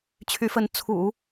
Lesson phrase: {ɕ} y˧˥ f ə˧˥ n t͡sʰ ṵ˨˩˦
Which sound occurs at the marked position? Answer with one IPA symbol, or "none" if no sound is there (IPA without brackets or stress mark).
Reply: t͡ɕʰ